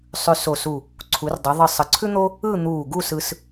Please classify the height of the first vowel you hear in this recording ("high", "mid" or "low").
high